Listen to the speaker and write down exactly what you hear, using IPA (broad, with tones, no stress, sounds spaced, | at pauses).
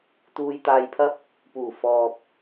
t̪ uː˧ j t̪ aː˧ j pʰ ɐ˥ p̚ | p uː˨˩ f ɔː˨ p̚